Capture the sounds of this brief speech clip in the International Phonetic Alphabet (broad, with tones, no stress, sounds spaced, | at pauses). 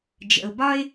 d͡ʒ ə̰˨ ʊ̯ b ɒ˥ ɪ̯